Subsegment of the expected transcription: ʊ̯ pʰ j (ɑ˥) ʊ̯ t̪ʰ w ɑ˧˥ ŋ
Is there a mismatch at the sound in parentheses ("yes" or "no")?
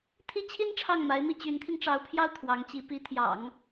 yes